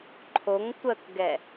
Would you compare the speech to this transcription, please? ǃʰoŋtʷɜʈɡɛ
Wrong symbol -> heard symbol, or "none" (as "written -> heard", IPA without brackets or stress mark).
ʈ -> k